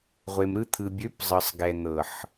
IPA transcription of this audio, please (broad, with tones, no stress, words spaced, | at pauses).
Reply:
ʁʷe˨mɾɯ˧t̪ʰɯ˨ bʲø˨˦pzˤɯ˨sˤɡɛ˨ n̪ɤ˨ħ